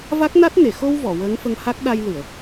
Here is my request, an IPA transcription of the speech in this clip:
v a˦˥ k̚ n a˦˥ t̚ n e˨˩˨ x o˧ w v ɔ˨˩˨ w əː˧˥ ŋ f ə˧ ŋ h a˦˥ k̚ ɗ a˧ j l ɨ˨˩˨ ə̯

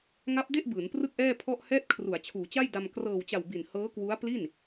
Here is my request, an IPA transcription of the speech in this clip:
ŋ a˦˥ p̚ d e˥˩ ʔ b ɯː˩˦ n p r ɯ˥˩ k̚ ʔ ɛː˥˩ pʰ ɔ˥˩ ʔ h ɛː˥˩ t̚ kʰ r u˩˦ a̯ t͡ɕʰ uː˩˦ t͡ɕ a˥˩ j d a˧ m k r ɤː˨˩ w t͡ɕ a˨˩ w b i˨˩ n h ɤː˦˥ k w u˦˥ a̯ p l i˥˩ n

